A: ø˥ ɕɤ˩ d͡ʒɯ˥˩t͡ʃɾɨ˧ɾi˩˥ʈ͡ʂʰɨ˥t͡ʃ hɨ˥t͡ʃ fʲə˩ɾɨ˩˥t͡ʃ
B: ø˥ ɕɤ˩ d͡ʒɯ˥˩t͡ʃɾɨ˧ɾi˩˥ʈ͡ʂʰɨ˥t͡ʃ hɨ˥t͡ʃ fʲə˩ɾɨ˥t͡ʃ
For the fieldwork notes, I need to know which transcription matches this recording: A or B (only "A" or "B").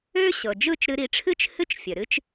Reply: B